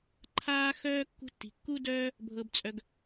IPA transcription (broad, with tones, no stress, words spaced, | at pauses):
ǃʰaː˦xœː˦ kːṳ˦tːi̤˧ kːu˦dœː˦ | bʱɤ˧bt͡sʼœ˧ɡ